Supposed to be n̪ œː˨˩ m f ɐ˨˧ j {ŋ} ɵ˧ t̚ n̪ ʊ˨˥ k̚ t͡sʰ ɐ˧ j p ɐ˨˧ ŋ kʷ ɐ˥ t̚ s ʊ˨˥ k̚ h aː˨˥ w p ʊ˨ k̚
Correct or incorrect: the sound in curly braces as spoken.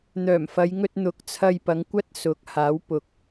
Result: correct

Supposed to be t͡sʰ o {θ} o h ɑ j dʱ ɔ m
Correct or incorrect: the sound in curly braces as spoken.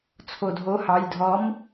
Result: incorrect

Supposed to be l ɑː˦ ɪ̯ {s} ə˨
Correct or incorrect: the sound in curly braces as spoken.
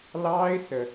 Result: correct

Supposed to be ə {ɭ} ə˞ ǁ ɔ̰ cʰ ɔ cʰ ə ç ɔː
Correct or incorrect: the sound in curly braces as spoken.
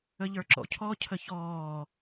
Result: incorrect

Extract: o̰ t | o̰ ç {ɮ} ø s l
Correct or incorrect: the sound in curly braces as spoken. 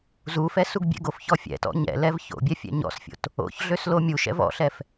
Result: correct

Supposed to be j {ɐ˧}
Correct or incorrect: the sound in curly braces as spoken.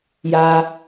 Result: incorrect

